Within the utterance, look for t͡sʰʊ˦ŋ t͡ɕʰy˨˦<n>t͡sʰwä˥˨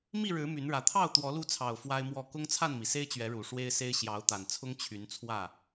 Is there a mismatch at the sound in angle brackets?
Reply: no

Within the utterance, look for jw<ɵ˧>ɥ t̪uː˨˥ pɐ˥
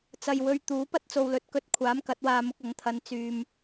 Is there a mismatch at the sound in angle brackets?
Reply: yes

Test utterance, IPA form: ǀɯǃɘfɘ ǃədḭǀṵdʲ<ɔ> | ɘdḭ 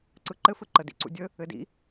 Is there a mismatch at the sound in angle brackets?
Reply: yes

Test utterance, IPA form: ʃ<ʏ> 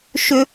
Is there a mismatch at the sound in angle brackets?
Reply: no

